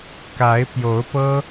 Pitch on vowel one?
rising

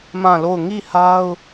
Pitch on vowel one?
falling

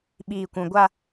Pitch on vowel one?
low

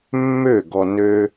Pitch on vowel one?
falling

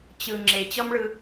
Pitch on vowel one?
low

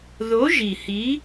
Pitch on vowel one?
rising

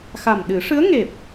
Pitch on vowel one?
low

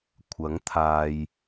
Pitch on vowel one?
rising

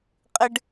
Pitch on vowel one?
high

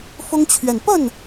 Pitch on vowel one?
high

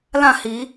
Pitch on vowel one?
falling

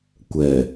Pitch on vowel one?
low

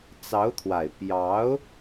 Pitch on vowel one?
rising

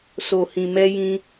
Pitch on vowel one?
low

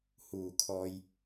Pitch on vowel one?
low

